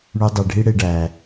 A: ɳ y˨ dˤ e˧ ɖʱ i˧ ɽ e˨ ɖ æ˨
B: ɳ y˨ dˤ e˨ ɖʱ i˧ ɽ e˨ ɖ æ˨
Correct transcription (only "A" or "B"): B